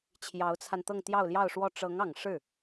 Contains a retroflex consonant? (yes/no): yes